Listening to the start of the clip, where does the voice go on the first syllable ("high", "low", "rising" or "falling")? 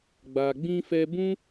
low